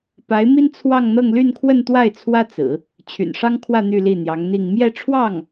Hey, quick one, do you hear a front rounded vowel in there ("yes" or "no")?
yes